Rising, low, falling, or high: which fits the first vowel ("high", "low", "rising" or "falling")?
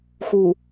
low